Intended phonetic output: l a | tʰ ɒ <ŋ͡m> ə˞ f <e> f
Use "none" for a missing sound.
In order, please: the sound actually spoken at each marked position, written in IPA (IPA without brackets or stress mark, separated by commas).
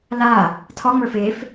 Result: ŋ͡m, e